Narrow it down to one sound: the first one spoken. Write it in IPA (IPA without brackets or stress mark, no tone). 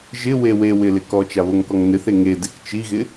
ʒ